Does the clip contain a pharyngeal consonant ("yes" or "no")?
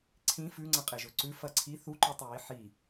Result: yes